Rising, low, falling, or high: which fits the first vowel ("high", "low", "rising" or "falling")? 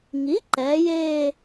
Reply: rising